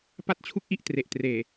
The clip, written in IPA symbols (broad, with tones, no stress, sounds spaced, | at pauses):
p a˥˩ t̚ t͡ɕʰ u˥˩ k̚ ʔ i˥˩ ʔ t r e˨˩ ʔ t r eː˨˩